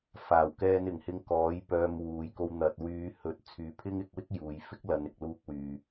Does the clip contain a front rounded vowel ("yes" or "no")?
yes